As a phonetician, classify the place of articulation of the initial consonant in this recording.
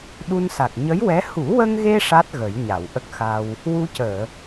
alveolar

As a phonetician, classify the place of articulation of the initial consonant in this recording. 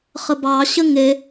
uvular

